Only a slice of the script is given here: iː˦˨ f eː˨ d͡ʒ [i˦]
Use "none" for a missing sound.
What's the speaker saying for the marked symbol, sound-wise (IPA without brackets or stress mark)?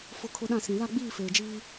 iː˦